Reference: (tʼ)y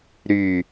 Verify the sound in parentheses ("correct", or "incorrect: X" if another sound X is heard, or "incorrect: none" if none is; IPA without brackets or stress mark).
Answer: incorrect: ɾ